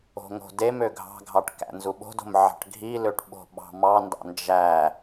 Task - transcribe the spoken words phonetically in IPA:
o̤ŋo̤demø ɡʱɑ̤ɡʱɑʈ kæ̰nzuɓo̤do̤m ʕɑ̤ʈɡʱiløʈ ɓo̤ɓɑ̤mɑndɑ̰ nd͡ʒæ

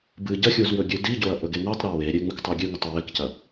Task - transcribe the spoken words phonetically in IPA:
bɨ ɟɐxʲuz wɵɡʲʉdiɟoɐ̯ ʔɵɡeŋotˤɾɨ weɾʲe ŋ͡mɨktˤuɡʲʉŋʉtˤ ɵwekcɐ

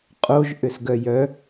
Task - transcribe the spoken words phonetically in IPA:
qʼoʒ ʔʏsɡœjœ

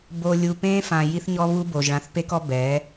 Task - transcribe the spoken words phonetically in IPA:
bo˨ lʲu˨pẽː˦fã˨ ji˦θɲɔ˦βu˦bo˨ʒ ɭã˨θpe˦kɔ˦ bɛ˨˦

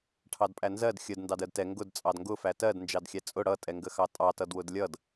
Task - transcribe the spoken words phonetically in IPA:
ʈʰɑdpʼænzɜd xʲəd ndɑdɜdtɛ ŋɡʊd t͡sʼɑdŋɡʊfæ tɜd nd͡ʒɑdxʲæt͡sʼʊ ɽʌtʼɛŋɡəxɑ tʼɑtʌdwʊd lʲʌd

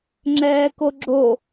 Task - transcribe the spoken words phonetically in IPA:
ŋ͡ǁɛːkoɡ͡ǁo

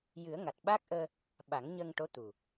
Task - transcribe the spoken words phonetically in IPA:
jɨ˨˩˦ə̯ŋa˨˩t̚ɓaː˦˥k̚ʔəː˧ | ɓa˨˩˦ŋɲəː˧ŋʈo˧˥ t̪u˨˩

